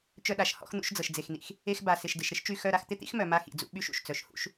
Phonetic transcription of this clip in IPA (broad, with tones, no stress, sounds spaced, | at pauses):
t͡ʃ œ˧ ɗ a˩ ʃ h ɔ̰˧ x n̪ ṵ˧ ʃ d͡z ɤ˩ ʃ d͡z e˩ x n̪ ḭ˩ x | e˧ x b a˩ s ɪ˩ ʃ d ɪ˩ ʃ ɾ ɪ˥ ʃ t͡ʃ y˧ x œ˧ ɾ a˧ x t̪ ɪ˥ t̪ ḭ˥ x m œ˩ m a˧ x ḭ˩ d͡z ṵ˧ ɓ y˧ ʃ ṵ˩ ʃ t͡s œ˩ ʃ h ṵ˧ ʃ